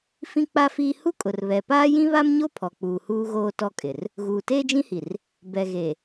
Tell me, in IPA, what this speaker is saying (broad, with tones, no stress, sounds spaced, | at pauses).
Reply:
f ĩ˦ k͡p a˦ f iː˦ h u˦ kʼ ʊ˨ r β ɛ˨ p aː˦ j ĩ˦ β a˦ m ɲ o˦ pʰ ɔ˨ k͡p uː˨ h uː˦ ɣ oː˦ t ɔ˦ kʼ ɪ˨ r | ɣ uː˨ t eː˦ d͡ʒ ĩ˦ h i˨ r | b ɛ˨ ɣ e˨